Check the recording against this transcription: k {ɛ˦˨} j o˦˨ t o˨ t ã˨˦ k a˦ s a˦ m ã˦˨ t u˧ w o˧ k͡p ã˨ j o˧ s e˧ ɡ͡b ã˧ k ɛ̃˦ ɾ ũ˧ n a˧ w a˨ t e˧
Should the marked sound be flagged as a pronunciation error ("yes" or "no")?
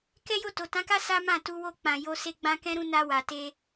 yes